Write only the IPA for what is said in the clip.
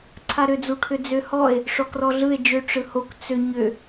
ǀʰaɾʏd͡zuʈʰʏ d͡zʏ hɔe̯ | ʂɔkrɔɮɯe̯ d͡ʒʏ ʈ͡ʂɯhok t͡sʏ ɲʏ

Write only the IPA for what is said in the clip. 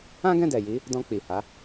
ã˦ɡɛ̃˦˨dɛ˨ji˨˦ | dɔ̃˧k͡pi˨ha˨˦

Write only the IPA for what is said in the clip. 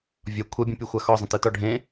vʲɒ kʷʰɛbʲõpʲoxʷa xɒzˤə̃tɯtɒ ɖʱẽ

